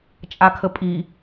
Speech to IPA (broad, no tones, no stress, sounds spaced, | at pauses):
t͡ʃʼ a kʰ ə pʼ i